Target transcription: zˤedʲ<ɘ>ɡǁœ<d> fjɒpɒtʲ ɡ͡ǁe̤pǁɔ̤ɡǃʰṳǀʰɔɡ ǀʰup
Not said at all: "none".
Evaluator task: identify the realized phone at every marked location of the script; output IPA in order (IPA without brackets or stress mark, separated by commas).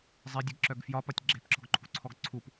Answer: ɘ, ɡ